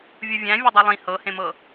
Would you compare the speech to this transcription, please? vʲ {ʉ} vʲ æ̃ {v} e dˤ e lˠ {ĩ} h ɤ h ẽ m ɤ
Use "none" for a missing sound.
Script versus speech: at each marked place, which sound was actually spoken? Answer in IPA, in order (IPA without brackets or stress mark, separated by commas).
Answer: u, vʲ, ĩ